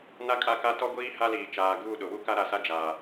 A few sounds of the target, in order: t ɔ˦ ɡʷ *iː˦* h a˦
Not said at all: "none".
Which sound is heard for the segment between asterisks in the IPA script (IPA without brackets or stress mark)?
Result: iː˦